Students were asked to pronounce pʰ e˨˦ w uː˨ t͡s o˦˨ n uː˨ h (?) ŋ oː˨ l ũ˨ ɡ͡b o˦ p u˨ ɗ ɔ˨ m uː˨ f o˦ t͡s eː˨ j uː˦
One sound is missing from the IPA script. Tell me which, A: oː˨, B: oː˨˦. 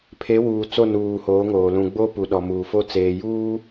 B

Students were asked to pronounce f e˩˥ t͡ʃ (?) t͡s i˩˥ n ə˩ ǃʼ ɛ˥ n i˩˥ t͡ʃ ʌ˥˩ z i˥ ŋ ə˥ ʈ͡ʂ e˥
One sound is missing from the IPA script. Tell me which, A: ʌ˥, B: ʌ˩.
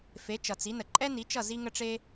B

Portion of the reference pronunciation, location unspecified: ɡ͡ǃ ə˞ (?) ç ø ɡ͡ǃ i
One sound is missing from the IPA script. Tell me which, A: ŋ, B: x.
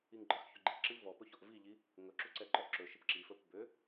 B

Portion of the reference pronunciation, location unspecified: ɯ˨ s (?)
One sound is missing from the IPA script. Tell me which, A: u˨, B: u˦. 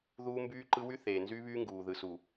A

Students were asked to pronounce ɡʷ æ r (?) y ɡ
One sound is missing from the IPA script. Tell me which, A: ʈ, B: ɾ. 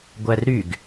B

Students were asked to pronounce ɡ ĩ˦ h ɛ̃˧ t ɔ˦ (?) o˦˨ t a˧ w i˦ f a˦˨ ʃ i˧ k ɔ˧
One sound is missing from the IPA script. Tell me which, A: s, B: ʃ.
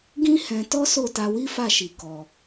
A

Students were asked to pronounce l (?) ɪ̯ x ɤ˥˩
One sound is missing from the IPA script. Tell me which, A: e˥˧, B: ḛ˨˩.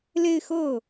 A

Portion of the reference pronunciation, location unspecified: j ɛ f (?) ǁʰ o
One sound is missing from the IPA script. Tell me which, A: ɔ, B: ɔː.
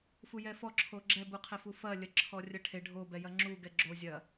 A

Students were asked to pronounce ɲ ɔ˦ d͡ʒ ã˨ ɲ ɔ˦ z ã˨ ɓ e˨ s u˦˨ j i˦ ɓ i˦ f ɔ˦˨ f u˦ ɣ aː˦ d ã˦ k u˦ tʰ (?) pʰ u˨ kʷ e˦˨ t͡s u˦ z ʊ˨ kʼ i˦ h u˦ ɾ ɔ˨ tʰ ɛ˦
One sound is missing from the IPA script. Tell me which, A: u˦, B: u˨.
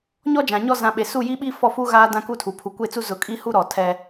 B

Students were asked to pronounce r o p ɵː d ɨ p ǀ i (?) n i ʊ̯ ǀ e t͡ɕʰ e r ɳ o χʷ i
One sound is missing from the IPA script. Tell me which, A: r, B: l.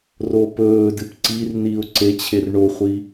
A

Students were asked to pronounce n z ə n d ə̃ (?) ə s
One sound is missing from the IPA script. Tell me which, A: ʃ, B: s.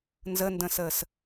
B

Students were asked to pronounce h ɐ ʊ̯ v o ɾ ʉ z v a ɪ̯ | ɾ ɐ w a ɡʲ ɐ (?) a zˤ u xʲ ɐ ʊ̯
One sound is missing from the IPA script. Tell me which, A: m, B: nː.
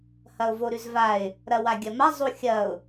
A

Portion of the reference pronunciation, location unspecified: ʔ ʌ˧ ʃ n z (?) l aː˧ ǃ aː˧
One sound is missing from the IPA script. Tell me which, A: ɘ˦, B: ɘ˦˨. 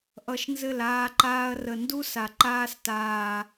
B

